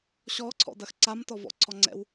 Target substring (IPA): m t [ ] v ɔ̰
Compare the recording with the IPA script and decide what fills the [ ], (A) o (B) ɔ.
B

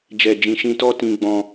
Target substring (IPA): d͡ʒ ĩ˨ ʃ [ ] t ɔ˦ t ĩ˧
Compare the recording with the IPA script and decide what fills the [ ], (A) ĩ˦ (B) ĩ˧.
B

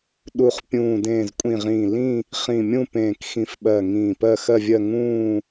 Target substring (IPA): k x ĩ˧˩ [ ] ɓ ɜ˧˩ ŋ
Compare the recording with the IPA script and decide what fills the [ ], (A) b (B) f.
B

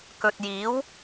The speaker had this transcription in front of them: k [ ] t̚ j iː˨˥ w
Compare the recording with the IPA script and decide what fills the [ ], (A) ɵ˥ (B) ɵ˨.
B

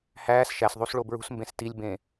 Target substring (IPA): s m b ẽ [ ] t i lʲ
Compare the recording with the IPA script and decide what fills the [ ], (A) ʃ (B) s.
B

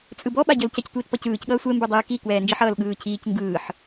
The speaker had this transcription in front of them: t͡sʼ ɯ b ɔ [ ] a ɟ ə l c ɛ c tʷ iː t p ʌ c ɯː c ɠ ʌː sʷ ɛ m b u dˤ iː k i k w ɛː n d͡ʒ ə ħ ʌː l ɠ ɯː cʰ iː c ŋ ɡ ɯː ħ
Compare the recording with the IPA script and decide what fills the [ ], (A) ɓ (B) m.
A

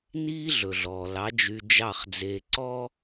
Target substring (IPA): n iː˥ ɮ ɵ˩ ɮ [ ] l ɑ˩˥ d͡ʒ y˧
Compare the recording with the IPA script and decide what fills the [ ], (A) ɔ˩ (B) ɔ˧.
A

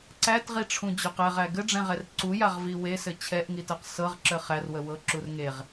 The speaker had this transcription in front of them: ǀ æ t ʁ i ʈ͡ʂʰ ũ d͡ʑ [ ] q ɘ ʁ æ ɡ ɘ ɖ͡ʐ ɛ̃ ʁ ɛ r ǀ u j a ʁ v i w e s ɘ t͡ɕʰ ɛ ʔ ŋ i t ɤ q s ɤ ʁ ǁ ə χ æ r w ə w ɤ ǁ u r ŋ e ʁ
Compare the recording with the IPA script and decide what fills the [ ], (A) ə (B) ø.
B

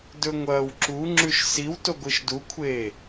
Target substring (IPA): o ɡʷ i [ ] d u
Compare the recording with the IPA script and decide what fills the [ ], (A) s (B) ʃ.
B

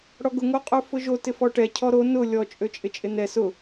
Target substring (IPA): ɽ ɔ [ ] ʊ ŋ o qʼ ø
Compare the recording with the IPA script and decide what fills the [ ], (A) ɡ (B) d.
A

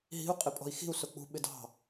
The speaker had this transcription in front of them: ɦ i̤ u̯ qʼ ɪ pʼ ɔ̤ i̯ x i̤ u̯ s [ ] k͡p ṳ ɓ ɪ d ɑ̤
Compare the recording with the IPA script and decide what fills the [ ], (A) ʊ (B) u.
A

